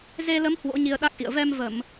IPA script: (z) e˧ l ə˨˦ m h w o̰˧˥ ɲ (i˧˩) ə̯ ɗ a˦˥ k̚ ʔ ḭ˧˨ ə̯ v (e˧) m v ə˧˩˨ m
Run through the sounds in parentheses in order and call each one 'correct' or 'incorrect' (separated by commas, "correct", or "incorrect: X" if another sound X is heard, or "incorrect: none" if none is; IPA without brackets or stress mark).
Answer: correct, incorrect: i˧, incorrect: ɛ˧